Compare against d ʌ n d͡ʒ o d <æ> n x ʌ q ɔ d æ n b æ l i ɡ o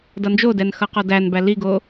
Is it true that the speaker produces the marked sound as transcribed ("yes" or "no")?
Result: no